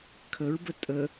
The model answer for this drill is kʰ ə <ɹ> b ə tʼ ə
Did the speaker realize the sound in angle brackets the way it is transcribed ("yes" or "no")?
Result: yes